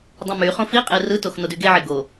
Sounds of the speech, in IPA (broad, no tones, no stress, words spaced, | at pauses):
dˤõmyχõ fiqʼe rɯtox nodyɡeʕe ɡo